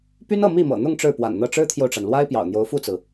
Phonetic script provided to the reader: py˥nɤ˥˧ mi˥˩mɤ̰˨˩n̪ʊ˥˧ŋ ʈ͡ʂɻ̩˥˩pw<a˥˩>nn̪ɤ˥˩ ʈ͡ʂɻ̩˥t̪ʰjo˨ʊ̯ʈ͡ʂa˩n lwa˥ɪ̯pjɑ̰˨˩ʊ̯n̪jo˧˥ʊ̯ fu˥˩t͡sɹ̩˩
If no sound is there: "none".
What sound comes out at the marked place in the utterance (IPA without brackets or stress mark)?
a̰˨˩